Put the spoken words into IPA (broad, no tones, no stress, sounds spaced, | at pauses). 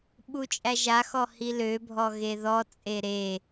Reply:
ɓ u t͡ʃʼ æ ʒ a x ɔ h i l ø bʱ ɔ ɣ e ð ɔ t͡sʼ e ɾ e